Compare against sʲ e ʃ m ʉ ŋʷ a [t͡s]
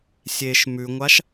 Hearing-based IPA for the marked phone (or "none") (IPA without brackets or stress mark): ʃ